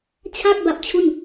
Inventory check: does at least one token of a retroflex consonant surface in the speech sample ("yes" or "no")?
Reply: no